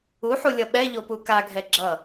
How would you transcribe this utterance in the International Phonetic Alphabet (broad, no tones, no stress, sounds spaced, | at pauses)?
u ħ u lʲ ʌ ɓ ɛ ʎ o p u k a ɡʱ ɛ ɡ͡ǁ ʌ